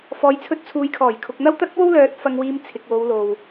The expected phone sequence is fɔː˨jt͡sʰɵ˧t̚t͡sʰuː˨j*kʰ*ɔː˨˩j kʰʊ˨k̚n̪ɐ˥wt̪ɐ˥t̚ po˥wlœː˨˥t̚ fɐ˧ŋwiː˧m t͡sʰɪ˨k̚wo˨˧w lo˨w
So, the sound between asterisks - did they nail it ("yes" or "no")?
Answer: yes